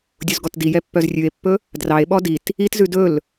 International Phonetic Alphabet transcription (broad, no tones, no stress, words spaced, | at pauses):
dʲuzɡɔtdijɛ pːœzrʲʉe̯pːɵ | drɑe̯ɓɔ dit | itzʉ dɵl